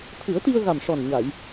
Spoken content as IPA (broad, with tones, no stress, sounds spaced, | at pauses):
t̪ʰ ɨ˨˩˦ ə̯ t̪ i˧ ə̯ ɣ a˨˩ m ʂ ɔ˨˩ n ɲ a˨˩˨ j